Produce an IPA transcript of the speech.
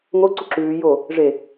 ŋ o ǀ u ǁ ʉː j o | ʐ e

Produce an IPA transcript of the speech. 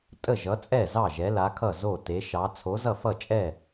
tʼ ə˥˩ ʒ ʌ˨˥ t͡sʼ ɛ˥˩ z ɑ˥˩ ʒ ɛ˨˥ l a˨˥ kʰ ʌ˥˩ z o˥˩ t e˨˥ ʃ ɑ˨˥ t͡sʰ o˨˥ z ʌ˥˩ f ʌ˥˩ t͡ʃʼ ɛ˥˩

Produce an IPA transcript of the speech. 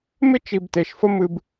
m ɪ˦ t͡ʃ i˨ b t e˨ ʃ f ə˦ m ɨ˦ b

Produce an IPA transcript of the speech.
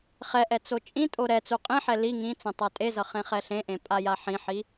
χ ɛ ʔ ɛ t͡s o t͡ʃʼ ĩ tʼ o ɾ ɛ t͡s u qʼ ĩ ħ ɛ l i ŋ ĩ t͡s ẽ tˤ a tʼ e z ʌ χ ẽ χ ɛ ɬ ẽ ʔ ẽ pʼ a j a ħ ĩ ħ i

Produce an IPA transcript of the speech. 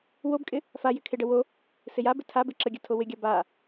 w o b kʼ ɪ | f a j ɪ kʰ ɪ ɖ ə w o | s ɪ j a b ɪ tʰ a b ɪ ǁ ə ɡʲ ə tʰ o w ɪ ɡʲ a b a

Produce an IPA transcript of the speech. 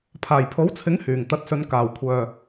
pʰ aː˨˩ j pʰ o˨˥ w t͡sʰ ɪ˨˥ ŋ h yː˨˩ ŋ t̪ ɐ˨˥ t̚ s ɵ˨˧ n k aː˨˩ w kʷʰ œː˨

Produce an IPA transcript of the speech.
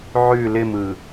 ʕ ʉ l ɪ m ɯ

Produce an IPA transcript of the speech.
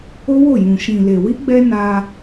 o˦ w o˦˨ j ũ˨ ʃ ĩ˨ l e˨ w i˧ ɡ͡b ɛ˦ n a˧

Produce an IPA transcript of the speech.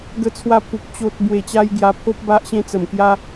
ɡ ə˧ t͡sʰ w a˧ pʰ u˨ k̚ t͡ɕ o˨ t̚ b w e˨˩ t͡ɕ a˧ j ɡ j a˧ pʰ o˦ p̚ b a˦ ʔ ɕ ẽ˦ t͡s ə˨˩ m k j a˧

